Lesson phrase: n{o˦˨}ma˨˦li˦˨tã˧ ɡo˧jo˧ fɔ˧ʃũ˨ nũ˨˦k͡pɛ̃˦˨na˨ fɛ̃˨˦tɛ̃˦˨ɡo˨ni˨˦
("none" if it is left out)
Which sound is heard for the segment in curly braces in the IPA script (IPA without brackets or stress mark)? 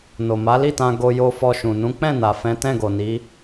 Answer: o˨